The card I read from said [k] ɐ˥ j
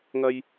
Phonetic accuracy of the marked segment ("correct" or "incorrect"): incorrect